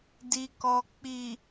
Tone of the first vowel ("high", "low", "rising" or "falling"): low